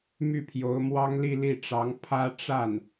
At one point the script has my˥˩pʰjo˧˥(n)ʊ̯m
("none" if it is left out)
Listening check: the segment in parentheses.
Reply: none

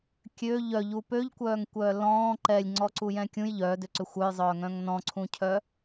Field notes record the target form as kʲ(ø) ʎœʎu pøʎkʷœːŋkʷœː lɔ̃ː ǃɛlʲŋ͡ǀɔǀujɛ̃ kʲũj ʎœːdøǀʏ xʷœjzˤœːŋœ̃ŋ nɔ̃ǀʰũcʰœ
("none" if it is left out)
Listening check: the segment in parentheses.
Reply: ø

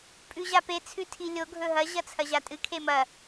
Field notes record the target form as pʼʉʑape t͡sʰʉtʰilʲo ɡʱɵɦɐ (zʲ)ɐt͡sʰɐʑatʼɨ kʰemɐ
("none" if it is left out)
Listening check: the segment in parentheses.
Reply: ʑ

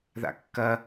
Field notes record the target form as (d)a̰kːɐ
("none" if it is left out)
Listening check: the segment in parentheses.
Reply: ð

